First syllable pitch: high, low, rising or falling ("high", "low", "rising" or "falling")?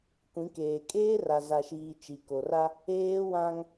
rising